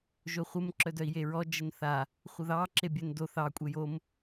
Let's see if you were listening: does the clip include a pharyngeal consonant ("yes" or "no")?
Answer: no